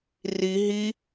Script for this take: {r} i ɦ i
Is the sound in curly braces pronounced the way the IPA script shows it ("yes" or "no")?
yes